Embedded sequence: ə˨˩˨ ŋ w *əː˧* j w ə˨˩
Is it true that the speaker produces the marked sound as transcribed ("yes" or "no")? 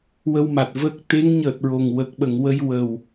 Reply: no